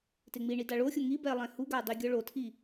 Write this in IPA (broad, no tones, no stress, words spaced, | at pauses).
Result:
teŋ͡miɳi daɭoxʲo ŋi bɛlˠɛ̃huɡa dˤiɡʲɔɭotʰi